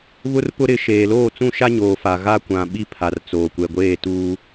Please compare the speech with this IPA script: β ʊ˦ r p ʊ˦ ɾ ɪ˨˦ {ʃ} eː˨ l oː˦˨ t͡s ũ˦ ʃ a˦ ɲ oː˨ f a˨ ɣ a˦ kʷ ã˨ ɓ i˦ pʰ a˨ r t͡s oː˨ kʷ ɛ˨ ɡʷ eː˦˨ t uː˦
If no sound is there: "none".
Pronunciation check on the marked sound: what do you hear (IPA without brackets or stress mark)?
ʃ